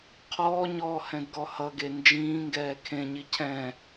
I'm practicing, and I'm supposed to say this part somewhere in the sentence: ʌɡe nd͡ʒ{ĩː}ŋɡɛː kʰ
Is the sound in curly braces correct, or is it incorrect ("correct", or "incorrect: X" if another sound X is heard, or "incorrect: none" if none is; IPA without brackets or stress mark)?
correct